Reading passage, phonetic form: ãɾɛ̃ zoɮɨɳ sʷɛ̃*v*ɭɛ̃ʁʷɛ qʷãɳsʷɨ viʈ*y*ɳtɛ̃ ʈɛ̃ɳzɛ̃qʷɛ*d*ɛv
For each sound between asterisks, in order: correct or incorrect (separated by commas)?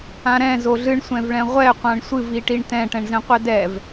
correct, incorrect, correct